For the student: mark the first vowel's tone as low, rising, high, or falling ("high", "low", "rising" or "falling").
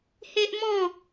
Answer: high